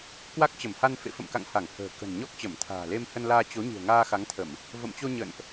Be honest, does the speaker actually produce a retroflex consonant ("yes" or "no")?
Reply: no